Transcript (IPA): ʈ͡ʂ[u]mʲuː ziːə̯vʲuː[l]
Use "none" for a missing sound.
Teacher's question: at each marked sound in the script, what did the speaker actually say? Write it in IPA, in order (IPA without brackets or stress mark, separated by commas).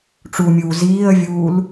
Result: u, l